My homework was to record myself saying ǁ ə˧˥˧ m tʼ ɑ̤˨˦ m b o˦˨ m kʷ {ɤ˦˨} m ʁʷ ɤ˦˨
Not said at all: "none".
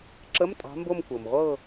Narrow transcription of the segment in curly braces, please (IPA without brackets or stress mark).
ɤ˩